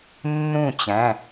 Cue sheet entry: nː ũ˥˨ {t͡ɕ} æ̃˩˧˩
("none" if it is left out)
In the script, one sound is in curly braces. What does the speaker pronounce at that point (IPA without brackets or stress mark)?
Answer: t͡ɕ